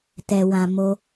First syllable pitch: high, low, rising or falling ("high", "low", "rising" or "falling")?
low